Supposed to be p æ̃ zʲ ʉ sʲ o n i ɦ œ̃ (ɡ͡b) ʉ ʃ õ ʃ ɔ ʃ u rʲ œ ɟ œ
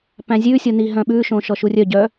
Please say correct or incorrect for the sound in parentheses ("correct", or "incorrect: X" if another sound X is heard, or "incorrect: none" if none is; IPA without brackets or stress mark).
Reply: incorrect: ɓ